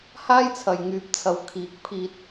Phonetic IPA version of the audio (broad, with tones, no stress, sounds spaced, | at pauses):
h aː˥ j t͡sʰ ɐ˨ j ŋ yː˨ p̚ t͡sʰ ɐ˨ w kʰ iː˨˥ k̚ pʰ iː˧ t̚